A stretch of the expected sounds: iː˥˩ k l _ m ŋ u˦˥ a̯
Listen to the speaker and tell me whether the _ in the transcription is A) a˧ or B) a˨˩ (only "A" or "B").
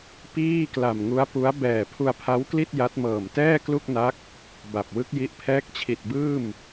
B